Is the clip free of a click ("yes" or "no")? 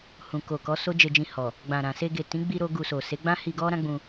yes